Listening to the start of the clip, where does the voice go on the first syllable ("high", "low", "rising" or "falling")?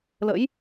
rising